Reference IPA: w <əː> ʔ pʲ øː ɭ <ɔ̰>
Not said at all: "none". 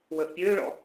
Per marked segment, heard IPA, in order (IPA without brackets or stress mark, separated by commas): əː, ɔ̰